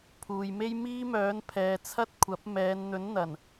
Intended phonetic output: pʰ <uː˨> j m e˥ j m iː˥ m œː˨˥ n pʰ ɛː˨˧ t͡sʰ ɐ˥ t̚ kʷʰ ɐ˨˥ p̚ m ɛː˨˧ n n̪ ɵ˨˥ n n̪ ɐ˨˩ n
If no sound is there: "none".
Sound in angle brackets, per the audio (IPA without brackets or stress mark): uː˨